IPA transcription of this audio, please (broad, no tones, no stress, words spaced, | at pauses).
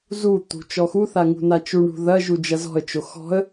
zut̪ṳ t͡ʃɔxuθa ŋṳnat͡ʃuɳṳ ðɐʒu d͡ʒɐzɔ̤ə̯t͡ʃo xɔ̤ə̯